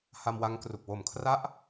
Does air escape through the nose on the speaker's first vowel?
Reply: no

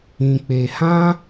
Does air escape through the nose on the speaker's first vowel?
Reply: yes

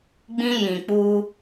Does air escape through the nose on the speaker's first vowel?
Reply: yes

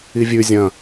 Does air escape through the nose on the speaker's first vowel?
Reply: no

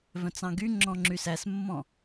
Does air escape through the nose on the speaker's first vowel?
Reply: yes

